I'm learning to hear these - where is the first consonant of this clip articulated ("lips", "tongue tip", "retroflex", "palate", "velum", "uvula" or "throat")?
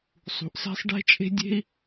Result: tongue tip